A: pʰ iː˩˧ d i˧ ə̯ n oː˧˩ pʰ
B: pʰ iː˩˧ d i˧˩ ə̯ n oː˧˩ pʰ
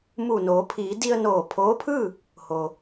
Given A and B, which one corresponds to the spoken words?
A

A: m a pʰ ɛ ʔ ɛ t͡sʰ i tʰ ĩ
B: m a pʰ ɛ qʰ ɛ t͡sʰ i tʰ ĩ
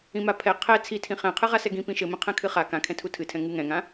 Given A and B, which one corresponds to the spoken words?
B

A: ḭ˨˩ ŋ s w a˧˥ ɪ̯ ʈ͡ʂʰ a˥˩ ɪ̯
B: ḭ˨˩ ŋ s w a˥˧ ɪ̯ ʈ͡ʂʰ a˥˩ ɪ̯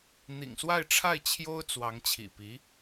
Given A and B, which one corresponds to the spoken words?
B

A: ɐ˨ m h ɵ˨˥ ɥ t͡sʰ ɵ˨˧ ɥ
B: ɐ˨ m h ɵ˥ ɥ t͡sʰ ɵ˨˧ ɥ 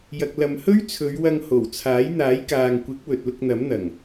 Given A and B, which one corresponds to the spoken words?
B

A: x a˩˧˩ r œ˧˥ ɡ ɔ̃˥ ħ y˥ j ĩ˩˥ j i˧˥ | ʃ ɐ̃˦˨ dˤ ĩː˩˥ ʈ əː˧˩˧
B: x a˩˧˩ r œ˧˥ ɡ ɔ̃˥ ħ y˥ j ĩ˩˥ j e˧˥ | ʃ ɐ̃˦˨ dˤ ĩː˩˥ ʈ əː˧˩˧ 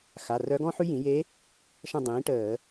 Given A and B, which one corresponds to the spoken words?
B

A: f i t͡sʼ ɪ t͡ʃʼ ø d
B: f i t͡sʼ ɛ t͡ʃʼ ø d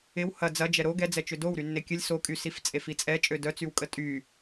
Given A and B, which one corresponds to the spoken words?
B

